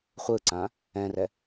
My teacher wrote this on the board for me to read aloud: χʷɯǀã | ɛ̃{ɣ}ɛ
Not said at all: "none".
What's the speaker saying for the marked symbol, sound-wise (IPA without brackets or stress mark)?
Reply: r